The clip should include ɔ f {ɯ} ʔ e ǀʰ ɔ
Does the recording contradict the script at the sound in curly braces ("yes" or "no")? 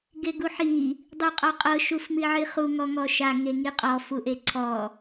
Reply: yes